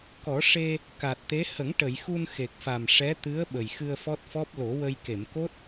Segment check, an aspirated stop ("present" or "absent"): absent